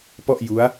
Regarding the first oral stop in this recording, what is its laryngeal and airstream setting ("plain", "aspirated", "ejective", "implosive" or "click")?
plain